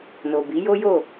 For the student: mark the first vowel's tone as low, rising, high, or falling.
low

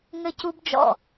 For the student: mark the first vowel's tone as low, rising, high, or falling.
high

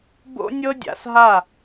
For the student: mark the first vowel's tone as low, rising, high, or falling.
high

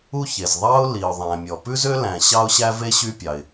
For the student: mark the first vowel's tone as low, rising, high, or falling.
high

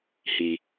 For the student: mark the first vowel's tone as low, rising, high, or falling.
low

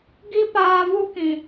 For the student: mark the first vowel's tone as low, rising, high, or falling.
high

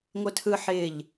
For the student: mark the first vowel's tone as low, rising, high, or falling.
high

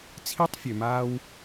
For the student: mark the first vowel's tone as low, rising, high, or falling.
high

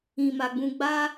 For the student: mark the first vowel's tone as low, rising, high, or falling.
low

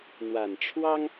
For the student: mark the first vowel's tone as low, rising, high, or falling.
low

